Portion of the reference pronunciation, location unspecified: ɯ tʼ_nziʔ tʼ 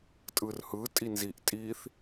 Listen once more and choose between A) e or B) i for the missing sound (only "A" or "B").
B